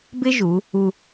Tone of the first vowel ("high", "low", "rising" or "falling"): high